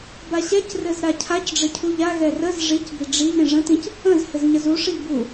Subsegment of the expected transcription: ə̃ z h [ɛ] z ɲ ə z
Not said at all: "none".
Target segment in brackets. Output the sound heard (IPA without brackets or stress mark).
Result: ɘ